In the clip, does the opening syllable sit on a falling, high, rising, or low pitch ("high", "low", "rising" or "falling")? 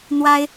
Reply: high